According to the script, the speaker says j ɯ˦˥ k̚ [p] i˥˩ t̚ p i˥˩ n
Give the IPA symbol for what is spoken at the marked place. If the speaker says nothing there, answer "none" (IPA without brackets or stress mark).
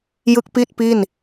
p